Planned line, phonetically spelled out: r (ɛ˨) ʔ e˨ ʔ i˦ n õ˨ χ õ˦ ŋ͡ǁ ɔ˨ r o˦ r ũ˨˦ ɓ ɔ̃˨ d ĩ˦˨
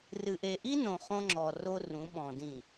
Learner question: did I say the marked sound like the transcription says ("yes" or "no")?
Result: no